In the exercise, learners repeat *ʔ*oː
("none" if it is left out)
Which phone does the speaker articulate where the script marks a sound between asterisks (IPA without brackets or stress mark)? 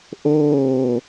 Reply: ʔ